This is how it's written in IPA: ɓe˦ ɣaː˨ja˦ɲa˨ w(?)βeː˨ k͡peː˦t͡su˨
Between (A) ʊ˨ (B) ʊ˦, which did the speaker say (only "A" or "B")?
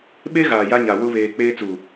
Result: B